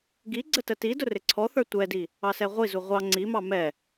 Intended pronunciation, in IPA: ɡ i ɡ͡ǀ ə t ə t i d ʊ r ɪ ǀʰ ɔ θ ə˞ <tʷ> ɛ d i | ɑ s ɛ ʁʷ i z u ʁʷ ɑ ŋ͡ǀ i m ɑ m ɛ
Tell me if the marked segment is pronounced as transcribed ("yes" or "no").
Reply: yes